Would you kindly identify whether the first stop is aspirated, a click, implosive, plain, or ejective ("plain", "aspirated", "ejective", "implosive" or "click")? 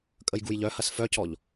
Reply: ejective